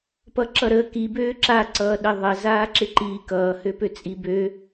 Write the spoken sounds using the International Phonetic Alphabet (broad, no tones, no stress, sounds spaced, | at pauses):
p ʌ ǁ ʌ ɾ ə k i b øː ǁ a ǀ ʌː ɗ ə ðˤ ə z aː ǁ ɪ ǃ iː k ʌː h ø p ø t͡sʼ i b ø